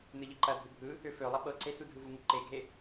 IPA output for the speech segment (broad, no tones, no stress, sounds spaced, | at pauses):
n ɯ ʎ ɯ ǃ ɐ dʱ ɯ bʱ ɯ | ø f ø lˠ ɐ ɓ ɤ ǀ e s u dʱ ɯ v u ŋ u ǃ e ɡʱ e